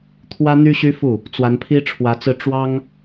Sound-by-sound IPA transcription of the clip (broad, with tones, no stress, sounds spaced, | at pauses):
t̪ʰ w ä˥ n̪ y˥ ɕ y˥ f u˥˩ | t͡s w a˧˥ n pʰ i˥ ʈ͡ʂʰ w ä˧˥ t͡s ɹ̩˥˩ ʈ͡ʂ w ɑ˥ ŋ